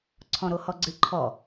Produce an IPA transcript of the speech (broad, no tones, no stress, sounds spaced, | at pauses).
ǀʰ ɔ̃ ɾ o h ɔ ɡ͡ǀ ɨ ǃʰ ɔ